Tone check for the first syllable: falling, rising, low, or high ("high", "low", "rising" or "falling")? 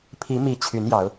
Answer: rising